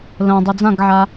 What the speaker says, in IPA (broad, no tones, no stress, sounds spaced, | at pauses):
l ə̃ dˤ i d͡z ã ɡ ʕ a